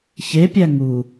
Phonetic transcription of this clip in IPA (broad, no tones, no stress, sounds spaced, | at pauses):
ç e pʲ æ ŋ u